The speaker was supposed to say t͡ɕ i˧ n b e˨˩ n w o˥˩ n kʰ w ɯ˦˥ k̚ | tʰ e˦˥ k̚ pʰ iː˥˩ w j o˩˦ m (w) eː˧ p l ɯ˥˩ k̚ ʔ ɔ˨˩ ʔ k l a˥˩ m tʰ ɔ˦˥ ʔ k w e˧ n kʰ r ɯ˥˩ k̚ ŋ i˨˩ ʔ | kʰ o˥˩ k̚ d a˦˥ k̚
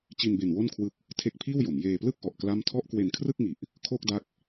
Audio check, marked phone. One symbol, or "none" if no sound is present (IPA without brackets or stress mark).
j